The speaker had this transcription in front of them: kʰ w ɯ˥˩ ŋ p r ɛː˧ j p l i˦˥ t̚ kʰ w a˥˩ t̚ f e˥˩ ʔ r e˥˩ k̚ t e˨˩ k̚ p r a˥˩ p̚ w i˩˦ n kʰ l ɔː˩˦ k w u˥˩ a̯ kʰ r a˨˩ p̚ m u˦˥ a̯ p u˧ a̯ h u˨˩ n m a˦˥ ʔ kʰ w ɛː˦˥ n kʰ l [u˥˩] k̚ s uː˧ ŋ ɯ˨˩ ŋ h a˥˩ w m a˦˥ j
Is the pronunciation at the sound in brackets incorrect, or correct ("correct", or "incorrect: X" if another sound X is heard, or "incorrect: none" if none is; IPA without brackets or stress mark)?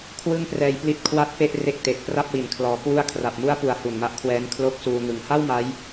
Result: incorrect: o˥˩